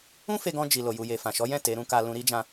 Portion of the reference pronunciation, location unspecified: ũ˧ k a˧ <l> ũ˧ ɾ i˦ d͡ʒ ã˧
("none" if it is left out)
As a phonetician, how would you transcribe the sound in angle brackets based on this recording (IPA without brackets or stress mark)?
l